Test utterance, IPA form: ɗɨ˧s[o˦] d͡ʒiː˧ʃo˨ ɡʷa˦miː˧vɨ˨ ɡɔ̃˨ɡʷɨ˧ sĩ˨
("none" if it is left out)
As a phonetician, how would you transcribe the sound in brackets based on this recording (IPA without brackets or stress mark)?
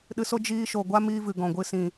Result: o˦